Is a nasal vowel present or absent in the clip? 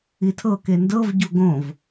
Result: present